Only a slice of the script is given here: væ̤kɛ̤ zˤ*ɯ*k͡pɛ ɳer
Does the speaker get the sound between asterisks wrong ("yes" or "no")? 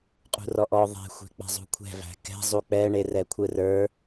yes